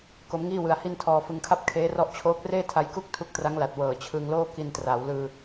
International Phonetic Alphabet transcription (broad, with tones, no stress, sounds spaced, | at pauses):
k o˦˥ m ŋ iː˥˩ w ɯ˧ a̯ h i˥˩ n tʰ ɔː˧ f ɯ˧ ŋ kʰ a˥˩ p̚ kʰ eː˦˥ r ɔ˦˥ ʔ t͡ɕʰ oː˦˥ k̚ r eː˥˩ tʰ a˧ j k u˥˩ k̚ tʰ u˦˥ k̚ t r a˦˥ ŋ l a˨˩ t̚ w ɤː˨˩ t͡ɕʰ ɯ˧ ŋ l oː˥˩ k i˧ n t r aː˩˦ w l ɯː˧